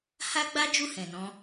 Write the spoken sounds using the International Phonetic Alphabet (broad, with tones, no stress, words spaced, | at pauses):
ha˦ɡ͡ba˦ d͡ʒu˦˨hɛ̃˨nɔ̃˧